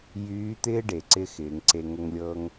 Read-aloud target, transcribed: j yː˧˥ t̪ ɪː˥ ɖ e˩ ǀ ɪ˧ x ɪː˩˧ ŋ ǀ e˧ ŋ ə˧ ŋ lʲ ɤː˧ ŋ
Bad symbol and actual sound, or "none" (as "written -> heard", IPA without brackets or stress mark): none